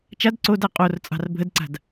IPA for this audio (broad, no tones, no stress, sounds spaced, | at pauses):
t͡ʃ a d ǀ o d a qʼ o r t͡sʼ ɑ̤ r bʱ ə d ǀ a̤ d